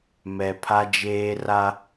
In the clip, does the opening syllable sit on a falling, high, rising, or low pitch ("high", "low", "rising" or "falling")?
low